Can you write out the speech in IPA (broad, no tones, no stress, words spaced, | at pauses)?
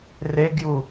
reɡju